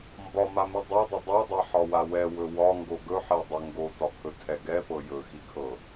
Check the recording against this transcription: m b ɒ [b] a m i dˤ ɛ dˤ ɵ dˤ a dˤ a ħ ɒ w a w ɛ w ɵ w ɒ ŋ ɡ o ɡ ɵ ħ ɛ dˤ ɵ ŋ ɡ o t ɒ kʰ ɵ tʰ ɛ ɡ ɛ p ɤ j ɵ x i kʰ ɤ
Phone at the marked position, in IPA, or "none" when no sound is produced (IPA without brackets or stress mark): m